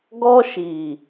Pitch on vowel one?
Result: high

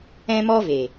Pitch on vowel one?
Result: high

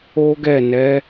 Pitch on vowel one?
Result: high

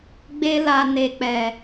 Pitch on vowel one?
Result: high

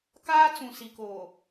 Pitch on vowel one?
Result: high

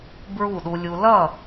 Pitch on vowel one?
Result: falling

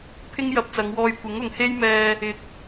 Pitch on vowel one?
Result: high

